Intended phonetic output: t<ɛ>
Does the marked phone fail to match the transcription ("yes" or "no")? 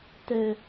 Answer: no